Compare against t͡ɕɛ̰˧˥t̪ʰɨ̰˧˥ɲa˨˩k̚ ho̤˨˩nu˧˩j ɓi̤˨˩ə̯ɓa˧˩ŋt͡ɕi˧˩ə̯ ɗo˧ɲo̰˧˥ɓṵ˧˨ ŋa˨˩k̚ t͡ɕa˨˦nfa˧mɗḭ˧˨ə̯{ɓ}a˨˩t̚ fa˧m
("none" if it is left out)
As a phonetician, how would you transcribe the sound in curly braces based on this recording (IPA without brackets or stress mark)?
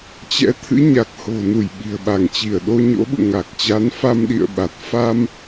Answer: ɓ